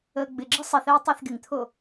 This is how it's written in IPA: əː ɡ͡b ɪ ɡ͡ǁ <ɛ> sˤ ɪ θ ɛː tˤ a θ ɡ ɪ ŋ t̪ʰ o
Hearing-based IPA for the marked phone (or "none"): ɪ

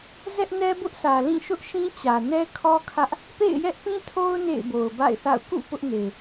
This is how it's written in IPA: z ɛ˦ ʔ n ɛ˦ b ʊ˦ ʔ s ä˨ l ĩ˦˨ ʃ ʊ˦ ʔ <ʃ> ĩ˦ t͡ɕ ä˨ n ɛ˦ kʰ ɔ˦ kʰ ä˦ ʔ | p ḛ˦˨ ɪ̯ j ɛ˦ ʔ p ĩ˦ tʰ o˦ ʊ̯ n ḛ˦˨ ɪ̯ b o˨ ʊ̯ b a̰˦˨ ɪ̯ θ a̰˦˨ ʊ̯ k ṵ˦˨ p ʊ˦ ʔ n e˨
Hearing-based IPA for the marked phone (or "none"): ʃ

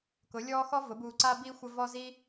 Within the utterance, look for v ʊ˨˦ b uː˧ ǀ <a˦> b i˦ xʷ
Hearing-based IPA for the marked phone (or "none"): a˦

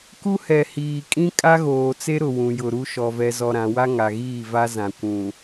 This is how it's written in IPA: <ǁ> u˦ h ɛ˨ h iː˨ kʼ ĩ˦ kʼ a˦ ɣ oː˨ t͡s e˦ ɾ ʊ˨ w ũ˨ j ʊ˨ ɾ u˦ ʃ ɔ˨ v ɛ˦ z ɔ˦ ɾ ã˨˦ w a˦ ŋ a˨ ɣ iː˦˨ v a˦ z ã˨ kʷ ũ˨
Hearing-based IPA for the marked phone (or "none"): k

